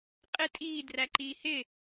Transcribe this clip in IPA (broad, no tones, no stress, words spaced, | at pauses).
qʼɪ tʼiː dræǃiːhɪ